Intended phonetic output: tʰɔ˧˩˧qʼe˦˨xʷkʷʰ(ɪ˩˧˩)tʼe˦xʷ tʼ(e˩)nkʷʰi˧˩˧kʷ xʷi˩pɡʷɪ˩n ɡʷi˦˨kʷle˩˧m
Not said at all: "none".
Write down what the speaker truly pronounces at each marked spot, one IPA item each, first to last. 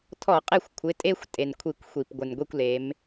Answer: ɪ˩˧˩, e˩

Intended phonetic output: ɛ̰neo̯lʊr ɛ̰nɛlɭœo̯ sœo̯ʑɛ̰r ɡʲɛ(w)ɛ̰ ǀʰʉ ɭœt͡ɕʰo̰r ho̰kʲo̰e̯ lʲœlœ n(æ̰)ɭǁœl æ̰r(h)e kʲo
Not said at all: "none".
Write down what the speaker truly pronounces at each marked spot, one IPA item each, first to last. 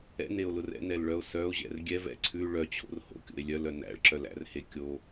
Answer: v, æ̰, h

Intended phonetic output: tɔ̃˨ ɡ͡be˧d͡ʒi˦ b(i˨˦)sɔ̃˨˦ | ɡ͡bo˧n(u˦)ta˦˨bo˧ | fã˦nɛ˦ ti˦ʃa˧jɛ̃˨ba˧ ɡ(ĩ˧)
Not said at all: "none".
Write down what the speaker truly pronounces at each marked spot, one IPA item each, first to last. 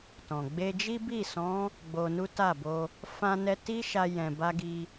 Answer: i˦˨, u˦, i˧

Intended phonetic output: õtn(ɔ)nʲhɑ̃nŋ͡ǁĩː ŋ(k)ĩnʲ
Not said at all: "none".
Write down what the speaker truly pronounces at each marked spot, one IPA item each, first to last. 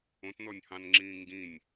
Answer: ɔ, ɡ

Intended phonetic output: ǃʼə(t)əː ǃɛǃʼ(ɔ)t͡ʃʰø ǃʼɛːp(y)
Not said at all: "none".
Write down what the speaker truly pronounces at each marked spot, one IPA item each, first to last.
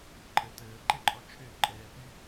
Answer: t, ɔ, y

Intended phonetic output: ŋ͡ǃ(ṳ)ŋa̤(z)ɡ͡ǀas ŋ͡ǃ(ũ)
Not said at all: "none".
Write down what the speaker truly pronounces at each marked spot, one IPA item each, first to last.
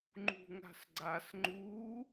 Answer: ṳ, s, u

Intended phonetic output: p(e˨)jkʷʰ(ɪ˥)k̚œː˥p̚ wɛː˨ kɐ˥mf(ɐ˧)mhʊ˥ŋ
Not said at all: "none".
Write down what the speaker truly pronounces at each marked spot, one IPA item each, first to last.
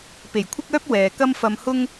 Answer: e˨˩, ɪ˥, ɐ˧

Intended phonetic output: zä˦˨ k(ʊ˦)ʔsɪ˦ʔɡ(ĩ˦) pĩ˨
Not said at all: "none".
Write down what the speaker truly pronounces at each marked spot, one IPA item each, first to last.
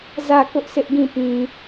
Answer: ʊ˦, ĩ˦˨

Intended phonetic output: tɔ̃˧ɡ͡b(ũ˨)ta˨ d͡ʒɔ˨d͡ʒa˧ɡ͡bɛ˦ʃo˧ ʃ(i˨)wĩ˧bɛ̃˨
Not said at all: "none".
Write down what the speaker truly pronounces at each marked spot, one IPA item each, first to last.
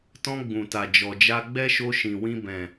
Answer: ũ˨, ĩ˨

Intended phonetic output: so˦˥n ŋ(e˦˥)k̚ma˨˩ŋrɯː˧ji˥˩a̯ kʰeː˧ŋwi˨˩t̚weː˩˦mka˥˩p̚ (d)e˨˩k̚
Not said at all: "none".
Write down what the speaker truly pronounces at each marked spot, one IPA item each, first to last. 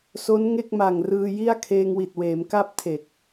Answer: e˥˩, tʰ

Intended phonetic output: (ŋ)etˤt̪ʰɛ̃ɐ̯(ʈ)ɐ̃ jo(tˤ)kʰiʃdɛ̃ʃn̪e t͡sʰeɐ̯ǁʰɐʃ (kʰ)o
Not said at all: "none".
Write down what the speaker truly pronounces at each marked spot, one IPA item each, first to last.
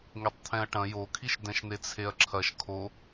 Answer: ŋ, ʈ, none, kʰ

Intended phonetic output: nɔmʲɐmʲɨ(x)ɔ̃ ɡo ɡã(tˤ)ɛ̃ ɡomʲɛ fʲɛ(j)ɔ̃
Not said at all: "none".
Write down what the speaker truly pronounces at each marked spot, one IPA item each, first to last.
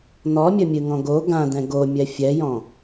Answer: ŋ, d, j

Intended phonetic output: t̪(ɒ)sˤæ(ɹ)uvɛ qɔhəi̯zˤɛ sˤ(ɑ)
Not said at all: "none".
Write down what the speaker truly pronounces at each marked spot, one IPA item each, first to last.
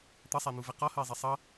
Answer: ʌ, n̪, ʌ

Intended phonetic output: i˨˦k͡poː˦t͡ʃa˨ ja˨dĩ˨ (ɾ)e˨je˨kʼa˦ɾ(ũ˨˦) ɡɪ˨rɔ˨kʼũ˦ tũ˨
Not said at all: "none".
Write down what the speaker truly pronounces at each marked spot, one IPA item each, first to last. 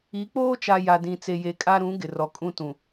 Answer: t͡s, ũ˨˦

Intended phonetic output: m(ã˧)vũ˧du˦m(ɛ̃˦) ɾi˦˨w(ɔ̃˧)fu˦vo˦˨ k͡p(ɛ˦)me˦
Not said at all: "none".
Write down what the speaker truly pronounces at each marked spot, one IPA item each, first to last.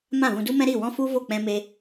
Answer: ã˦˨, ɛ̃˦, ɔ̃˦, ɛ̃˦

